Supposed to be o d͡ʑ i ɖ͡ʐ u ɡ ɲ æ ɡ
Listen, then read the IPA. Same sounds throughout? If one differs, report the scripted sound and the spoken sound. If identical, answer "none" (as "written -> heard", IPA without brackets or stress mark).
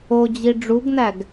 ɲ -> n̪